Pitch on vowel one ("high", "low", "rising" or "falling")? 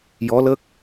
rising